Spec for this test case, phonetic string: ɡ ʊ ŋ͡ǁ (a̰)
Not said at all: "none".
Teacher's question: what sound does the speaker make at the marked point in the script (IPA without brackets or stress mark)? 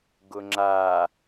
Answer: a